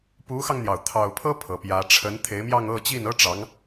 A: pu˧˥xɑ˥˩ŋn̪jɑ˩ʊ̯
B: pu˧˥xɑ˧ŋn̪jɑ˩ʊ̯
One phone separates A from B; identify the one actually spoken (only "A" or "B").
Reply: B